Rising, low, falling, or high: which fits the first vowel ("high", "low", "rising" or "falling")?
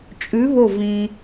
rising